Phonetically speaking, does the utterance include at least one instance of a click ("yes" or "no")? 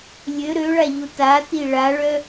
no